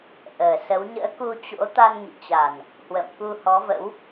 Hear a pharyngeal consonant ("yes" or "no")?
no